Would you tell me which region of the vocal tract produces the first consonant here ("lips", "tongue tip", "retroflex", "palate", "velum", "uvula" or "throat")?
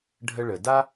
retroflex